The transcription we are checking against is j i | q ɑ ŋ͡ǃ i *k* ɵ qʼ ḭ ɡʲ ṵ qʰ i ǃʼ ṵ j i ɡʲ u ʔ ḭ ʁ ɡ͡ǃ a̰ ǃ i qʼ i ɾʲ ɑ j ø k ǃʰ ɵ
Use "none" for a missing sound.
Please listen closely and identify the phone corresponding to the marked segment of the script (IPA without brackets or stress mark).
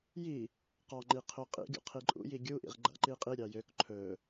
qʰ